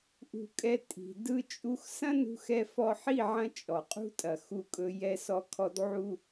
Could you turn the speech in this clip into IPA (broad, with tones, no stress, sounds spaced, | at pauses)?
ʔ ṳ˧ kʼ ɛ˧ tʼ i̤˨ d ɯ˦ t͡ʃʼ u˦ x s ɐ̃˦ n ṳ˧ x ɛ˧ f ɔ˧ ħ i˦˨ ʕ ɐ̃˧ t͡ʃʼ ɔ˨ qʼ ṳ˦ tʼ ɐ˨ x u˧ kʼ ɵ˧ j ɛ˧ s ɔ˧ kʰ ɔ˧ d ʕ u˧